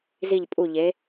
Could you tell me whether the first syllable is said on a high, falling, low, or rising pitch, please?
falling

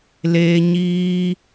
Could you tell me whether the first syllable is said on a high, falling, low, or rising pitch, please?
high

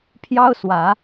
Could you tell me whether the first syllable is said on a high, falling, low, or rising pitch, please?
high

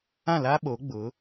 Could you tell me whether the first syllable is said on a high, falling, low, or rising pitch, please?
falling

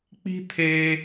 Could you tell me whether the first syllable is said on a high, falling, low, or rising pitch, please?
high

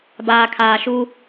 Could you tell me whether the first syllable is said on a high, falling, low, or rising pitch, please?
low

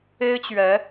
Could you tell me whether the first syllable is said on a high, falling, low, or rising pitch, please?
high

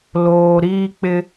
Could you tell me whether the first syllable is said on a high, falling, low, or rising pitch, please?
low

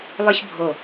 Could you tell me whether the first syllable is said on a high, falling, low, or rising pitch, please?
high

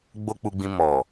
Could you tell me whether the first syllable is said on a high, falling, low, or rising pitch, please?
high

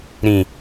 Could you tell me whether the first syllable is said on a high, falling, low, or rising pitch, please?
low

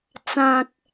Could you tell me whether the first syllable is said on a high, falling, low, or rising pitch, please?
low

